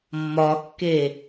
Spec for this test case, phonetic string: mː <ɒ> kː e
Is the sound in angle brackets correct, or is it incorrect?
correct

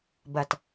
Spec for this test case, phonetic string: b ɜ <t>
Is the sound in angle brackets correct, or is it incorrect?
correct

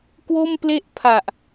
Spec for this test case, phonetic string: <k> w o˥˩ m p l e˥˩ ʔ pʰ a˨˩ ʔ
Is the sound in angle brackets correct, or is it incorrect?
correct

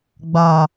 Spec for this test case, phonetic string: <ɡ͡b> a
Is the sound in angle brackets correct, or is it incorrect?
correct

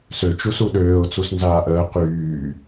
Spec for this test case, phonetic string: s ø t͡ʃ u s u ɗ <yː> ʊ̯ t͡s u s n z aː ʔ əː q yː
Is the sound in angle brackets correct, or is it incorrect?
incorrect: øː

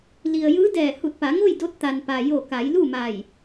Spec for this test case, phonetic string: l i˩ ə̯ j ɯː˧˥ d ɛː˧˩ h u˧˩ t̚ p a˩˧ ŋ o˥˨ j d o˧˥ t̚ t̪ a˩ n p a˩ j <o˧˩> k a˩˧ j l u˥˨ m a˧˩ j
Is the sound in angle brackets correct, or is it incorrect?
correct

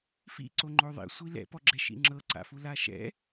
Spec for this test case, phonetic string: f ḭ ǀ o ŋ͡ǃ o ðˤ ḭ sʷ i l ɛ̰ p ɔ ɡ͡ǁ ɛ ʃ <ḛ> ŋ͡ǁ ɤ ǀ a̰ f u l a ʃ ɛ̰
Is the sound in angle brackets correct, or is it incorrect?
incorrect: ḭ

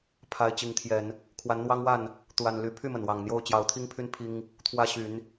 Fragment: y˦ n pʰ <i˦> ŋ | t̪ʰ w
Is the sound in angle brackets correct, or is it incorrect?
correct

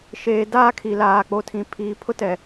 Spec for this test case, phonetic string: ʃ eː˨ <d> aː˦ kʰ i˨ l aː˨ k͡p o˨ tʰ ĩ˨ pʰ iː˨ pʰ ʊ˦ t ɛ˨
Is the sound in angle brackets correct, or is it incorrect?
correct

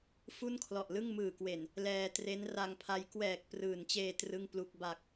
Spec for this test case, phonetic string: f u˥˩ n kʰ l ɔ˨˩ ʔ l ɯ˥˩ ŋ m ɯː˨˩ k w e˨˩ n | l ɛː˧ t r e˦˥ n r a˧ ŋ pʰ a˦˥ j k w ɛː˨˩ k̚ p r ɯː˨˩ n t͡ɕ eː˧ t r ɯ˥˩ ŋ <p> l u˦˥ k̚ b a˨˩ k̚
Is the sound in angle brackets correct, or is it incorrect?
correct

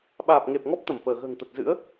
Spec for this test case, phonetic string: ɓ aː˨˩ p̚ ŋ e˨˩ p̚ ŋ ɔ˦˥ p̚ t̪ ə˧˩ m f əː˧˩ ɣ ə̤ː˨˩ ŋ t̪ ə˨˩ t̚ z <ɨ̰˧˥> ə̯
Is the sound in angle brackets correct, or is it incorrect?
correct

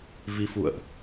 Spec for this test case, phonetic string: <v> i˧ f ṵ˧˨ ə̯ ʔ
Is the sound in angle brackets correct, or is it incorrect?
correct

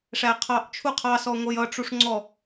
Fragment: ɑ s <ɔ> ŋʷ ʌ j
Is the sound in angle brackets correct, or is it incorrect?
correct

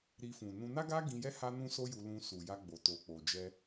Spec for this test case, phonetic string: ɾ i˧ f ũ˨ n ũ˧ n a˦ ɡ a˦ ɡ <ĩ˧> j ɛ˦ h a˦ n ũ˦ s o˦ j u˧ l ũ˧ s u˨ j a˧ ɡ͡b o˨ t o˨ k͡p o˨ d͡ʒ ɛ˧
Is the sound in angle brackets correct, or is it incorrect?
correct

